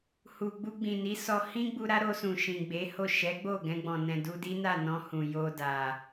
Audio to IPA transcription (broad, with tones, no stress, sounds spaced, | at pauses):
h u˨ ɡ͡b u˧ ɡ͡b ĩ˨ n i˨˦ s ɔ˧ h ĩ˦ ɡ͡b u˧ ɾ a˦ ɾ o˧ s ũ˨ ʃ ĩ˨ ɡ͡b e˨˦ h o˦˨ ʃ ɛ˨˦ ɡ͡b o˦˨ ɡ ɛ̃˧ ɡ͡b ɔ̃˨ n ɛ̃˨ d u˧ d i˦ n a˦˨ n ɔ̃˧ h ũ˨ j o˧ d a˨